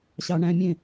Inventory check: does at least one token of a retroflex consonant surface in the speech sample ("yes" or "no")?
yes